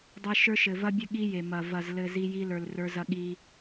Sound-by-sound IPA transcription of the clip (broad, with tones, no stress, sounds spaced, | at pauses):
dˤ ɘ˦ ʃ ə˞˦ ʃ ɘ˨ v ɐ˦ bʲ ɘ˦ ɠ i˦ j e˨ m ɐ˨ v ɐ˨ z l ɘ˨ z i˦ j i˦ l ə˞˨ l r ə˞˦ z ɐ˦ ɠ i˦